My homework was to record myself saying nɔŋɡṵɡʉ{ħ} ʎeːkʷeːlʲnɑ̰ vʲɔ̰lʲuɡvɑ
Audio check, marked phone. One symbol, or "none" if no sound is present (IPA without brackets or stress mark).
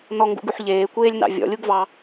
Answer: ħ